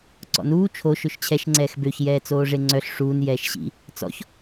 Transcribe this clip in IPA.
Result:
ǀ ɔ̰ n uː t͡ʃʰ o ʃ ø ʃ t͡ɕʰ ɛ ʃ ŋ͡ǀ ɛː x b ø ç j ɛː t͡s oː ʐ e ŋ͡ǀ œ ɬ ʂ uː n j ɛː ʃ ɕ ḭ | t͡s ɔ̰ ç

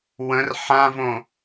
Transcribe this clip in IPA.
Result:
w ə̃ r ħ ã v õ

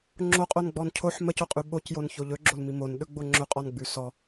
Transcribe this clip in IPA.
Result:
ŋ͡ǁ o qʼ o n ɡ͡b ɔ n cʰ o ħ m ə c o qʼ ʉ ɓ o c j o n ç o ʎ ɵ ɡ͡ǁ o l m i m o n ɗ ɵ ɡ͡b o ŋ͡ǁ ɵ qʼ ɔ n ɡ͡b ʉ s ɔ

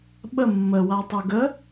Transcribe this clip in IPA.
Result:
ɓ ə mː ə w a tˤ u ɡ ə

